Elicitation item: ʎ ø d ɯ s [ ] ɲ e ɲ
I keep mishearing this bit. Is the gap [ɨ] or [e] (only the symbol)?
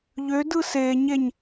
e